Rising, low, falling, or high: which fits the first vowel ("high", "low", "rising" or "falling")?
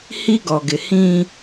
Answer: high